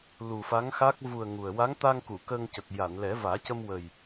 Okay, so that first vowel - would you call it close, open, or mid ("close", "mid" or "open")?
close